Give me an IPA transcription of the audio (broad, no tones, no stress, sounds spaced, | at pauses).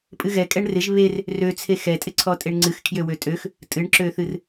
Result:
pʼ ɨ ɣ ɛ kʼ ɛ ɳ r ɪ ʒ β e r | r ø t͡sʰ e x ɛ tʼ ɪ ǀʰ ɔ tʼ e ɳ ŋ͡ǀ ɨ x kʰ j ø w ø tʼ ø x | tʼ ɨ ɳ ǁ ø θ ɨ r